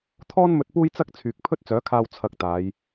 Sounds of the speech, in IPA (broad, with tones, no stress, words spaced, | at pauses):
t̪ʰɔː˥nmɵ˧t̚ puː˥jt͡sɐ˥k̚ t͡sʰyː˨k̚pʰɵ˥t̚t͡sœː˨˥kʰaː˧w t͡sʰɐ˧k̚t̪aː˨˧j